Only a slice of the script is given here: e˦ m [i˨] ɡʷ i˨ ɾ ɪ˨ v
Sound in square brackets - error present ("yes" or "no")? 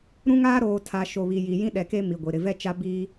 no